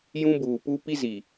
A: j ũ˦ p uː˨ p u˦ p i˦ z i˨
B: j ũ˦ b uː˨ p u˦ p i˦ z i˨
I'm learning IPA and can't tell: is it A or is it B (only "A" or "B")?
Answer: B